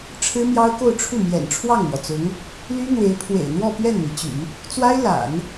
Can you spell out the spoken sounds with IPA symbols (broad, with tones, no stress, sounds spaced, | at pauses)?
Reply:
ʈ͡ʂʰ ɻ̩˥ m j ɑ˥ ʊ̯ k o˥˧ ʊ̯ ʈ͡ʂʰ u˥˩ m j ɛ̰˨˩ n ʈ͡ʂʰ w ɑ˥˩ ŋ m w ɔ˩ t͡s ʊ˧˥ ŋ | l y˥ n̪ w e˧˥ ɪ̯ pʰ w ḛ˨˩ ɪ̯ n̪ w ɔ˥˧ p ɥ ɛ˥˩ n m i˩ t͡ɕ y̰˨˩˦ | t͡s w a˥ ɪ̯ l a̰˨˩˦ n